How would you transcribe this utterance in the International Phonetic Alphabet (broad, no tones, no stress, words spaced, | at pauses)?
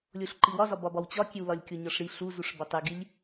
lʲoɬǃiwɒzɒ bɒbɒwt͡ɕɒkʲew lɒlʲkʲoɲɒʂɾi ɬu zuʂbætˤeɡilʲ